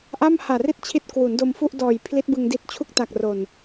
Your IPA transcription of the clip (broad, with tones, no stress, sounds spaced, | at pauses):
ʔ a˥˩ m h aː˨˩ r i˥˩ t̚ t͡ɕʰ i˦˥ t̚ k w u˩˦ n d o˧ m f u˥˩ ʔ d ɔː˨˩ j pʰ l i˦˥ t̚ b ɯ˧ ŋ d i˦˥ t̚ t͡ɕʰ u˥˩ k̚ t a˨˩ k̚ r o˨˩ n